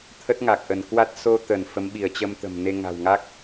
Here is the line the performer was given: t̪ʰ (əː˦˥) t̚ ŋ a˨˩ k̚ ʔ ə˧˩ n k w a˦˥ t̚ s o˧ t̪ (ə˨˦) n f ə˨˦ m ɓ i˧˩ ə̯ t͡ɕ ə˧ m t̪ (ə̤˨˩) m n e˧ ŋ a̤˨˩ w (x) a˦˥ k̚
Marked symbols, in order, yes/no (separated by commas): no, no, yes, no